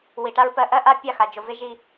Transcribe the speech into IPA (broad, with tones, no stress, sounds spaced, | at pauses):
w i˨ ʈ a˧ ɹ p ɜ˧ ʔ ɜ˦ ʔ a˧ pʲ a˦˨ x a˨ d͡ʒ o˨ v e˦ ʒ i˧